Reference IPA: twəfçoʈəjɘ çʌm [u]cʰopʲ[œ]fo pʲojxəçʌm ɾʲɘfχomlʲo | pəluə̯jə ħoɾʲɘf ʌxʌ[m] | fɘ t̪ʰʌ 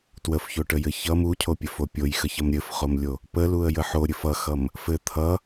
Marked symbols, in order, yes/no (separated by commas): yes, no, yes